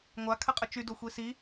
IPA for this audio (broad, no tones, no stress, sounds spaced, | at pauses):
ŋʷ a kʰ ə qʼ ə t͡ʃ y d o xʷ i s i